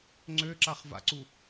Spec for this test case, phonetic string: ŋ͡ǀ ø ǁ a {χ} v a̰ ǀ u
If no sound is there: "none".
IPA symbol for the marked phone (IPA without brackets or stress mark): χ